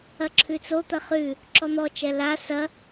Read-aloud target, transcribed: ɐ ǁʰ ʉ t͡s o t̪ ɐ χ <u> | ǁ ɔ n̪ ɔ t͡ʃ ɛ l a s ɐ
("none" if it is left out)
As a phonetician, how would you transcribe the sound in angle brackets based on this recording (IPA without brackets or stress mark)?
ʉ